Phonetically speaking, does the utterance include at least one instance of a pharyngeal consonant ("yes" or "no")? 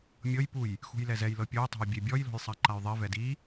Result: no